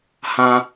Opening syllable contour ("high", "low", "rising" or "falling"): high